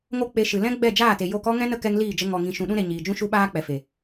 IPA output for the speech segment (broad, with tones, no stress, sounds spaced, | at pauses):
ŋ o˦ k͡p e˧ ʃ ɨ˨ l ɛ̃˦ ɡ͡b ɛ˦˨ d͡ʒ aː˦˨ t e˨ j o˧ k ɔ˦ ŋ ɛ̃˦ n ə˦ k ɛ˧ ŋ l iː˦˨ d͡ʒ ə˧ ŋ ɔ˨ ŋ ĩ˨ ʃ ũ˨ ɗ ũ˦ ɾ e˨ ɲ iː˨ d͡ʒ ũ˦ ʃ u˦ ɓ aː˦ k͡p ɛ˨ f e˨